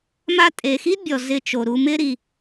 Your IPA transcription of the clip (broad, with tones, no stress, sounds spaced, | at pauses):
m a˧ tʼ e˨ x i˦ bʲ ɔ˨ z ɪ˧ t͡ʃ o˨ ɾ u˧ m ɪ˦ ɾ i˧